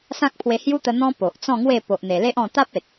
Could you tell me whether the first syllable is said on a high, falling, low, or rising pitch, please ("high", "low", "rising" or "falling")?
high